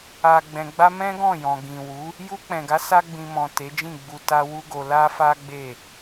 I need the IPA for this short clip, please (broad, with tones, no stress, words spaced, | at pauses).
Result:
a˨ɡ͡bɛ̃˨ɡ͡ba˧ mɛ̃˦ɡɔ̃˦˨jɔ̃˨ ɡĩ˨ wu˨˦ | ju˧k͡pɛ̃˨ɡa˨˦ sa˧ ɡ͡bĩ˨mɔ̃˨ te˨˦d͡ʒĩ˦˨ɡ͡bu˧ ta˧ wu˦ɡo˧ la˦fa˦ ɡ͡be˦˨